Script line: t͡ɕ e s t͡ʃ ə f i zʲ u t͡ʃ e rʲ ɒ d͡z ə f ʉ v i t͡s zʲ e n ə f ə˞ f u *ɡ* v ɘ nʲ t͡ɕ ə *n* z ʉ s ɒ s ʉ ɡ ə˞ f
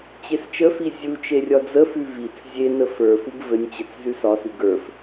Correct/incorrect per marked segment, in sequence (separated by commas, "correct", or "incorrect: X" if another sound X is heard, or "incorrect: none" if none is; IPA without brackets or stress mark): correct, incorrect: t͡s